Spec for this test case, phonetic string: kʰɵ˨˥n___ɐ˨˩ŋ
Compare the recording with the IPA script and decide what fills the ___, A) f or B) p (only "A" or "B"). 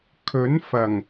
A